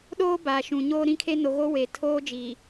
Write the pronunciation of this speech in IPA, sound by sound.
ɗ oː˦ b aː˨ ʃ ũ˨ ɲ oː˦ ɾ ĩ˦ kʰ e˦ n o˨ ɣ o˦ w eː˨ tʰ oː˦ d͡ʒ i˨

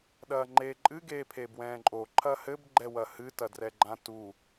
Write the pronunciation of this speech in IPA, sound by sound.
ɗ ɐː ŋ͡ǃ eː ǃʼ ɨ ɡ eː pʰ eː b w ɛ̃ː ǃʼ o ǃʰ ɐ h ɘ b ɡ͡ǃ ɛ w ɐ h ɨ t ɐ d r ɛ ɡ͡ǃ ã t u

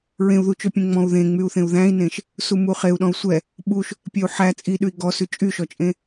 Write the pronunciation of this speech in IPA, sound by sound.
ɹ ẽ u̯ ð u t͡ʃ ɵ pʲ ẽ ŋ͡m ɔ̃ u̯ ð ẽ ŋ͡m y u̯ θ ẽ u̯ ð æ̃ i̯ n ẽ ʃ | s u m u χ e u̯ ɗ ɔ̃ u̯ sʷ ɛ | ɓ u ʃ | pʲ ɛ u̯ ħ æ t͡sʼ i ɗ ʉ i̯ ɡ ɔ s ʉ t͡ʃʼ y ʃ ɔ t͡ʃʼ ẽ

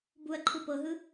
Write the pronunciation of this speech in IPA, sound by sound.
b u ɐ̯ ǃʰ u p ɤ ɦ ɯ

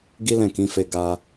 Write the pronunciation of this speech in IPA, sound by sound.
ɡ i˦ l ɛ̃˦˨ k ĩ˨˦ f e˧ ɡ a˧

